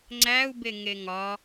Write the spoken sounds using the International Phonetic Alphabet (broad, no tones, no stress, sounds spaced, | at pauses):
ŋ͡ǀ æ u̯ b e ŋ e ŋ ɒ